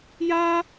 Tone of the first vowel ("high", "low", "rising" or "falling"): high